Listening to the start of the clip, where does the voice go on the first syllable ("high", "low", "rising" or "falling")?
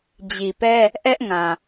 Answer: low